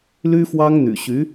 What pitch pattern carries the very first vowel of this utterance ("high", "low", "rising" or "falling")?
high